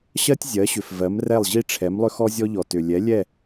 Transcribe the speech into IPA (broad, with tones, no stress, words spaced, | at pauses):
ɕɜ˥tʲzʲɜ˩˥ɕʏ˩f vɜ˩˥mrɛ˥˩lˠʑi˥ʈ͡ʂʰɛ˩˥m lˠʏ˥xɔ˥zʲɔ˥ʎɔ˩ tʏ˩lʲɛ˩˥ lʲɛ˥˩